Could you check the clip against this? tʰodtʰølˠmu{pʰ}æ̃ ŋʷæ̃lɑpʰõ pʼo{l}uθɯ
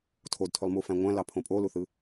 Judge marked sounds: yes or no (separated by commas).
no, yes